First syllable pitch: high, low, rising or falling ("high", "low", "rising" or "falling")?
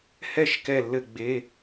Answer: falling